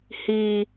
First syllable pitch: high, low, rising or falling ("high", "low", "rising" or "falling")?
high